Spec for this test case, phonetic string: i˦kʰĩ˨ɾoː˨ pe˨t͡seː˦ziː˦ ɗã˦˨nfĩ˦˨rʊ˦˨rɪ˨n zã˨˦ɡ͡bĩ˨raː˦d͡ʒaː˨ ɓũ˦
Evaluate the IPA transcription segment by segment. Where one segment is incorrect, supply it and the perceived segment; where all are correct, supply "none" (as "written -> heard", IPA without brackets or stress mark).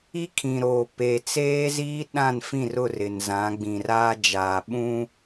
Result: none